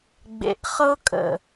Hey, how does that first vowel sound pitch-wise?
low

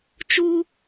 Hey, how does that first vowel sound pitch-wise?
high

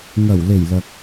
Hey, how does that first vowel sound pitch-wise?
low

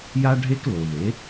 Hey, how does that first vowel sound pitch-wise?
high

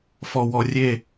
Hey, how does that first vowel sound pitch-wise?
low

